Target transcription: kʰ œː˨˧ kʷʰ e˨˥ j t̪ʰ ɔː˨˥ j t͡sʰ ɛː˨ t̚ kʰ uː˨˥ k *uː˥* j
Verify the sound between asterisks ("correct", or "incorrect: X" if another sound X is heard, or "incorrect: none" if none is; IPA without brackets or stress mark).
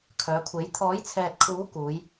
incorrect: uː˨˧